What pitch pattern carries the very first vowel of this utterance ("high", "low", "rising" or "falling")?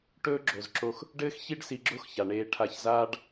high